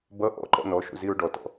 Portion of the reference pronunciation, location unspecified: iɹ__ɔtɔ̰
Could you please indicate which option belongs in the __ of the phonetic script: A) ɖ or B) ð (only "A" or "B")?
A